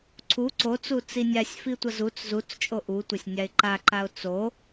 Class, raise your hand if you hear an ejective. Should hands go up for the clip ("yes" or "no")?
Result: yes